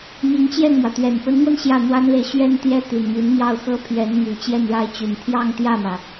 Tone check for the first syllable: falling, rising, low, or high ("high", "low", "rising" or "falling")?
rising